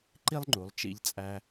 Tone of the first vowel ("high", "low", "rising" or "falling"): high